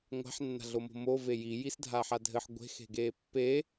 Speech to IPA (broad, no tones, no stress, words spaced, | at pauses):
ŋʷa̤ħ nːa̤ɮomo̤mo veji jisdʱaːħadʱɘħ ɡʷe̤x e̤ɡeːpːe